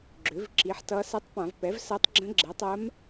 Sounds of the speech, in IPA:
ɡ͡ǁø˩˥v ǁi˩˥ħtʌ˧˥ sɛ˧˥tˤpã˧˩˧vpɛ˩˥vsɜ˧˥tˤ ɡ͡ǁə̃˧˥ɡ͡ǁɛ˩˥tˤɜ˧˥m

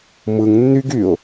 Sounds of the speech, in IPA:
mɯŋ nːyɡ yʊ̯

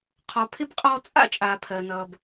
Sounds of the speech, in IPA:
qʰɔ˩pʰɪ˥bqʼɔː˦ t͡sʼa̰˦t͡ʃʼaː˩ pʰɜ˩nʌː˩b

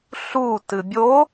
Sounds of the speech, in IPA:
ɬu tɨbʲo

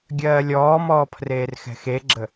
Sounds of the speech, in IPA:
ɡʲɜːlʲɔːmɔːpʰreːr xɛ̤xeɡ͡ǁə

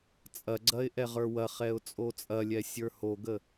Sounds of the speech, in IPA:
t͡sʼɐɡ͡ǀɐɪ̯ ʔɛʁə˞wɐχɛʊ̯ t͡sʼot͡sʼɐlʲɛ sʲə˞hoɡə

